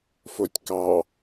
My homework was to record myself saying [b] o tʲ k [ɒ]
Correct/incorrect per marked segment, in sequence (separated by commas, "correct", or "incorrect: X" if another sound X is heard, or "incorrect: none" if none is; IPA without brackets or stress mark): incorrect: f, incorrect: ɑ